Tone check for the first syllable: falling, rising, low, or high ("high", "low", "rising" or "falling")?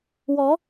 rising